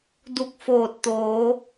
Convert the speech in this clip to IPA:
du˧˩k̚ foː˧˩t̚t̪oː˩˧

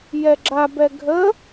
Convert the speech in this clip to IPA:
jɛɡ͡ǁabɛ ɡʱə

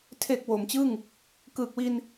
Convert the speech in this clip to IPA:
tʰe˨˩k̚ wo˩˦mt͡ɕɯ˥˩ŋ | kɯː˨˩k̚wi˧n

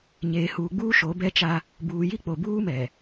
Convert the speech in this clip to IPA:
ɲeː˨huː˨ɡ͡buː˦ ʃo˨˦bɛ˦t͡ʃa˦ | buː˨ji˦ k͡po˨buː˦mɛ˨

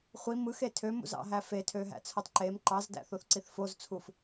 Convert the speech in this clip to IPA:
χʷi mɯxe tʰømṵzɑ̰ɦæ fetʰøɦæ̰t͡sʰotˤ ǃem ǃɑzdæ̰θoθǀiθ fozt͡sʰuf

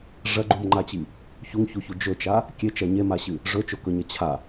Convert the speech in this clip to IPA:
ʐɐɡ͡ǃumŋ͡ǃat͡ɕi | çuŋçuçu d͡ʒɵt͡ʃa | kʲet͡ʃɐ ɲemaɕɨ | ʐɵt͡ʃokɵɲɐ t͡ɕʰa

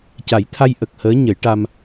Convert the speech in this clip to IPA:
ca˨˩˦jt̪ʰa˧jʔə˨˩k̚ həː˧˥ɲə˨˩˦jʈa˧m

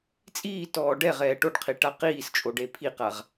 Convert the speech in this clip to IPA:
t͡sʼiːtɔː ɖɛʁɛː ʈoɖqʰi ʈaqiːst͡ʃʼoɖ epʰiqaʁ

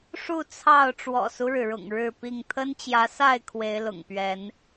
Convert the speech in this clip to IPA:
ʂu˥˨t͡sʰɑ˥˨ʊ̯ ʈ͡ʂwɔ̰˨˩su˦ɻɻ̩˩ɻʊ̰˨˩ŋ ɻɻ̩˥˨pi˥˨ŋ t̪ʰə˦nt͡ɕjä˨˦sa˥˨ɪ̯ kʰwe˨˦ɪ̯lʊ̰˨˩ŋpɥɛ˨˦n

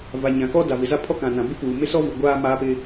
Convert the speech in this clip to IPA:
va˨ɲã˨kɔ˦ da˨vɪ˨za˦pʰɔ˦ kã˨nã˨ bɪ˦puː˨ mɪ˦sɔ˦vu˨ ɡʷaː˦maː˦pɪ˦

